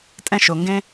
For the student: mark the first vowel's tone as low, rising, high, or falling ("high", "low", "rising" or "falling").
high